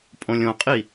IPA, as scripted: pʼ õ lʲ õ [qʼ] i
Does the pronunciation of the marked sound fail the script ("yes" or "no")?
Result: no